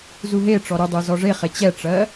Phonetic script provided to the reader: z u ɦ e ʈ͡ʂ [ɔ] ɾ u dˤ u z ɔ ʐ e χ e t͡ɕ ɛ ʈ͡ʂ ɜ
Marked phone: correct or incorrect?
correct